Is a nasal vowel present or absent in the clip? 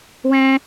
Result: present